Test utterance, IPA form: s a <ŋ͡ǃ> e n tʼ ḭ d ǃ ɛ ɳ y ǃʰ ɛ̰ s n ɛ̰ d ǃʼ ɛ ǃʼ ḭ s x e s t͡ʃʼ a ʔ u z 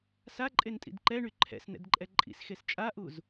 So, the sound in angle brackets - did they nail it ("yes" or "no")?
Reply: no